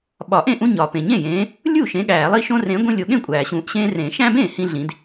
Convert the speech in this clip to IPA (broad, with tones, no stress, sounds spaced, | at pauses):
ɓ ɒ˨˩˦ ʔ ẽ˥˩ ʔ ũ˦ ɲ ɒː˩ p ẽ˩ ɲ ẽ˥˩ j ẽː˨˦ | lʲ uː˥˩ ʃ ẽ˨˦ ɠ æː˨˩˦ lˠ i˦ ʃ õ˦ r ẽ˨˦ ɡʷ ĩ˦ lʲ o˨˦ ɠ ẽ˥˩ kʷʼ æː˩ ɕ ũː˨˩˦ ʔ ɕ ẽː˦ r ẽː˨˩˦ ʃ æ̃˦ b ẽː˥˩ h ĩ˦ ɮ ĩ˨˦ d